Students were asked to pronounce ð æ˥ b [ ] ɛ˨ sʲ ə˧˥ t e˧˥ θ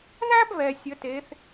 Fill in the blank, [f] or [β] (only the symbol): β